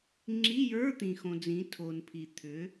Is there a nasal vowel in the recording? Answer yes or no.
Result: yes